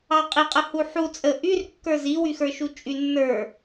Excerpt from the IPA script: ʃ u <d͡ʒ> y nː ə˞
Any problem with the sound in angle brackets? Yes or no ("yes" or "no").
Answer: yes